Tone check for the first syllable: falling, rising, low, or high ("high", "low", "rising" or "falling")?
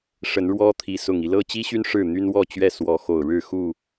rising